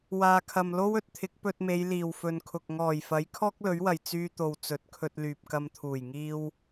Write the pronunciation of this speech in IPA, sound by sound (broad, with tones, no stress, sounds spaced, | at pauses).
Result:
w aː˨ kʰ ɐ˨ m l o˥ w ɵ˨ t̚ t̪ʰ ɪ˨˥ k̚ p ɵ˧ t̚ m e˨˧ j l iː˨˩ w f ɵ˨ n kʰ ʊ˨ k̚ ŋ ɔː˨˩ j f ɐ˨˥ j kʰ ɔː˥ k̚ l ɵ˨˥ ɥ w ɐ˨ j t͡s yː˧ t̪ o˨ w t͡s ɵ˨ t̚ kʰ ɵ˧ t̚ l yː˨ p̚ k ɐ˧ m t̪ʰ uː˨˩ j ŋ iː˧ w